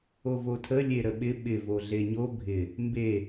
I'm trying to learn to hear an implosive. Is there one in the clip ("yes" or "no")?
yes